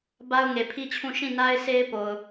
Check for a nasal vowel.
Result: present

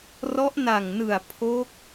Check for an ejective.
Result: absent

